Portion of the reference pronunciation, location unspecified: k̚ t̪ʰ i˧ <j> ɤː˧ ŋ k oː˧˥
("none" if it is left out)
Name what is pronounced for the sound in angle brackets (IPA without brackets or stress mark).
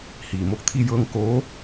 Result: j